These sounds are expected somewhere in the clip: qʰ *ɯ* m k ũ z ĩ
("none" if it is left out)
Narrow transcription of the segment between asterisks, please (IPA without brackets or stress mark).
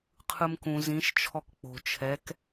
ɯ